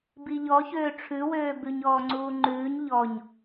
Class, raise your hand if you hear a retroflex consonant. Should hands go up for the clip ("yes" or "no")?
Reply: yes